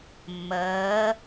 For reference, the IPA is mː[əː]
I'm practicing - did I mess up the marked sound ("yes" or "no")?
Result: no